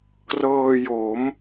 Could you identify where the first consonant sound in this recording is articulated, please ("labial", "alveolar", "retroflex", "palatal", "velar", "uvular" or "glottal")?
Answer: velar